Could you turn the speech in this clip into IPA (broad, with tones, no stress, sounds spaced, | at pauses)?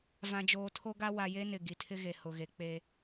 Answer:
v ã˨ d͡ʒ oː˨ tʰ o˦ ɡ a˦ w a˨ j e˦ n ɪ˨ ɡ i˨ tʰ ɪ˦ ɣ e˨ h ʊ˨ ɣ e˨ k͡p e˦